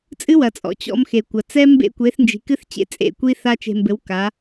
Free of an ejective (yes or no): no